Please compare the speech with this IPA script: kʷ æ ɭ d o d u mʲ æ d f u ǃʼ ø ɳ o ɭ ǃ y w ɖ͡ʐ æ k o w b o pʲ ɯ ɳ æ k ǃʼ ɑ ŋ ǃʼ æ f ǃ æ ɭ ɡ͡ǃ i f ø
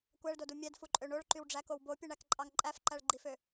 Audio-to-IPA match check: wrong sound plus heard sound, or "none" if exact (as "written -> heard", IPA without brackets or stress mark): none